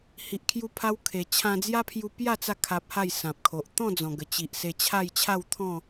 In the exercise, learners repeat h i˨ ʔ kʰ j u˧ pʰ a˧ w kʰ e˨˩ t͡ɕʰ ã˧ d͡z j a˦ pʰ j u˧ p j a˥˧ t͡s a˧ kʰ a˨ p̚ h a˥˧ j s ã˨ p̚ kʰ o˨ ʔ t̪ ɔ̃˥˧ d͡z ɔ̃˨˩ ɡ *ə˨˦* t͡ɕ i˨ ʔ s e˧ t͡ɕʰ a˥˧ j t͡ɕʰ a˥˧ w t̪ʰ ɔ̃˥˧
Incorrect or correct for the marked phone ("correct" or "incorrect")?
incorrect